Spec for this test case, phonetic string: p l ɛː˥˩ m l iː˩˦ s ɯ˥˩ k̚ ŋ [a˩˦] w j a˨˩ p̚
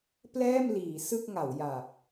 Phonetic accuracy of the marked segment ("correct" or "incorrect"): correct